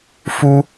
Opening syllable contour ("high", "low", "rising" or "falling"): high